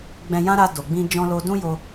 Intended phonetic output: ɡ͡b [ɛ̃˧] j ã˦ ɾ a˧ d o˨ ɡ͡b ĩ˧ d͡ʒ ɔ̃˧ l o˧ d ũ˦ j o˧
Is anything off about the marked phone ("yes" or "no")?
no